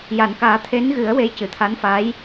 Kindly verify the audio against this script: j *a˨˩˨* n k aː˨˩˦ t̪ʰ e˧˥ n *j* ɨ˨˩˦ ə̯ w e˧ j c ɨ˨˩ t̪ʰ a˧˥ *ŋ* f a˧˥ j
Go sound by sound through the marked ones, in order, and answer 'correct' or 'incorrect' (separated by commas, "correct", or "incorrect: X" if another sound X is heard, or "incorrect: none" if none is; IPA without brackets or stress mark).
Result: correct, incorrect: ɣ, incorrect: n